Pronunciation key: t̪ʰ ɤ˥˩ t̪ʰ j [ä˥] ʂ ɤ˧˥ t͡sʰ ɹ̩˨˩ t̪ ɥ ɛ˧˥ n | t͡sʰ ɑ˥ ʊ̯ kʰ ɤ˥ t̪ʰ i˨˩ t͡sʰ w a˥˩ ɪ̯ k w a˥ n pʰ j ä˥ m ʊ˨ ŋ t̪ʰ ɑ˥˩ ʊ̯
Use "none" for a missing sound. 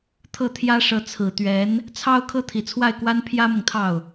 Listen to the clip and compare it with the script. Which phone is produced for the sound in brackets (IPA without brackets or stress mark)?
ä˥